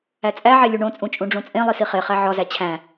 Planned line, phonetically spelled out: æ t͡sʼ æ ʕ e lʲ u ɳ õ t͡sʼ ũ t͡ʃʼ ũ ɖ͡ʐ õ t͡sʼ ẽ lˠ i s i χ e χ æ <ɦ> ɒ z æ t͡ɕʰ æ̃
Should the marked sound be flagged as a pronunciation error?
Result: yes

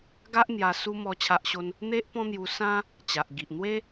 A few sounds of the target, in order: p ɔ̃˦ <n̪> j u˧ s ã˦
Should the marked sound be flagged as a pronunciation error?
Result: no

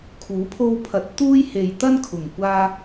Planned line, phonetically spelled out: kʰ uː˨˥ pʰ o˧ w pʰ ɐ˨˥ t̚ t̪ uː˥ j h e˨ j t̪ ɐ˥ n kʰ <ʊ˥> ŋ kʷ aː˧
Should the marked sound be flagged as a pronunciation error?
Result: yes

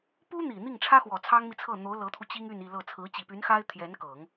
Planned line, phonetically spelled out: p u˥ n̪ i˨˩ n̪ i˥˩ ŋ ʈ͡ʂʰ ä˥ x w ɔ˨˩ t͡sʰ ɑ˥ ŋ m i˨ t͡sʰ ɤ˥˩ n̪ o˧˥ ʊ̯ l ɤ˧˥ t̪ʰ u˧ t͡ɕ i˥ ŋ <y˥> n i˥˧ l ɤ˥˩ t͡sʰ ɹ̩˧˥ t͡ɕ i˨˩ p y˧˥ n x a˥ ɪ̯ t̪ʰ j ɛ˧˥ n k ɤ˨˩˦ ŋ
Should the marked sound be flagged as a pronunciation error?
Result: yes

